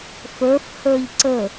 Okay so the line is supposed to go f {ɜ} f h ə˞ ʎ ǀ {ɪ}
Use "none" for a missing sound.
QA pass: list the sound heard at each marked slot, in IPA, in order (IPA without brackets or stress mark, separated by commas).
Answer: ə˞, ə